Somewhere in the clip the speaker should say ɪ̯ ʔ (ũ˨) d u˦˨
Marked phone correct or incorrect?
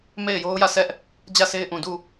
correct